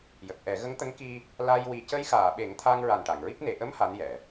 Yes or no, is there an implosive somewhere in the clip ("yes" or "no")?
yes